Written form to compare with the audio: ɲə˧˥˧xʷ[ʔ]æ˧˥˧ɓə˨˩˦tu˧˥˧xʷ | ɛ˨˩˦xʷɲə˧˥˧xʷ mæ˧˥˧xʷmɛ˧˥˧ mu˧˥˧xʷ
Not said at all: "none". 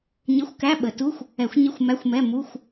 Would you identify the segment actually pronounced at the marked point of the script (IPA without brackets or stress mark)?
k